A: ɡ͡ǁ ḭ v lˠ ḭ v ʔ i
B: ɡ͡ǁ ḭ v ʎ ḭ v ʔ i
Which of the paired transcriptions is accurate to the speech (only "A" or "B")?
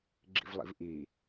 A